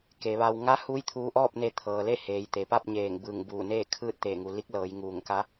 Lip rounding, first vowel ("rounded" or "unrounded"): unrounded